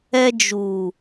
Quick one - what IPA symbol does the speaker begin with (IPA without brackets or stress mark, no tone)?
ɛ